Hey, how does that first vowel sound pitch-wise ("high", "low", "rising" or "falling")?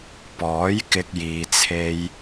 rising